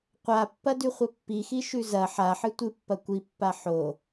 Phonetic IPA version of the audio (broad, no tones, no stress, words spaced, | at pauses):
qʷapːɐdʉχʷɐ pːixiʃʉ zɐ ħaħɨ tʷɨpːɐ kʷipːa ħo